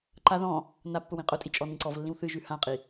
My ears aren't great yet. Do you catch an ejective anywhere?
yes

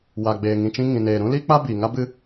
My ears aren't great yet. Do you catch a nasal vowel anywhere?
yes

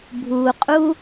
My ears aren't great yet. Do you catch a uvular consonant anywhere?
yes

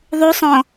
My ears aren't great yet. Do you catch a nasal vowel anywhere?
yes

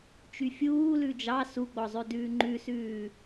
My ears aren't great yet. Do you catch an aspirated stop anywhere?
no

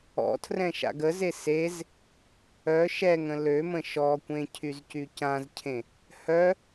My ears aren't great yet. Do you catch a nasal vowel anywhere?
yes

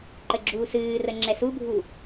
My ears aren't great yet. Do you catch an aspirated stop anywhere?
no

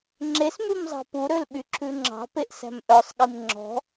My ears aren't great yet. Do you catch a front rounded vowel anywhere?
yes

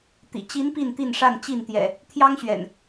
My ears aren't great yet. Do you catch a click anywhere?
no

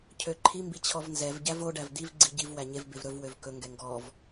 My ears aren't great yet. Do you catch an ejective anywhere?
no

